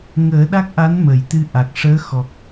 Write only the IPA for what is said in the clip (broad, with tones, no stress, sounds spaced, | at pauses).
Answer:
ŋ əː˨˩˦ ɗ a˦˥ k̚ ʔ a˧˥ n m ə˨˩˨ j t̪ ɨ˧ ʔ a˨˩ k̚ ʂ əː˧˥ x ɔ˨˩ k̚